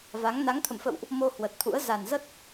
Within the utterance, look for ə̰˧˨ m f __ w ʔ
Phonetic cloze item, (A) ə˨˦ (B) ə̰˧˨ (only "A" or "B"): B